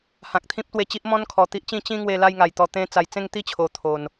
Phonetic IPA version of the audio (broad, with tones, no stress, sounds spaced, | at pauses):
h ã˨ k̚ t̪ʰ ĩ˦ p̚ t̪ w e˧ t͡ɕ i˦ ʔ m ɔ̃˦ n kʰ ɔ˨˩ t̪ i˦ ʔ t͡ɕ ĩ˥˧ t͡ɕ ĩ˦ ŋ w e˧ l a˥˧ j ŋ a˨˩ j t̪ ɔ˧ t̪ ẽ˦ t͡s a˧ j t͡s ẽ˥˧ ŋ t̪ i˥˧ t͡ɕʰ o˨˩ t̪ʰ o˨˩ n